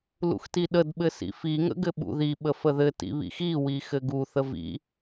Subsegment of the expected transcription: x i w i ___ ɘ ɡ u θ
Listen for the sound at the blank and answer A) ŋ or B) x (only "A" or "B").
B